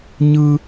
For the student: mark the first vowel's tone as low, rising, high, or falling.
high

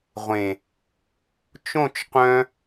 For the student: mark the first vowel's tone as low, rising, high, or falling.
low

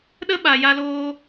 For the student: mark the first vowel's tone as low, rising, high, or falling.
high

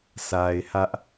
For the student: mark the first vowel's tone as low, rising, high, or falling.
low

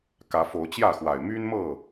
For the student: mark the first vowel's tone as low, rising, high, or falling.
rising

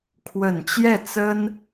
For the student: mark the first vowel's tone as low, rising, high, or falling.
low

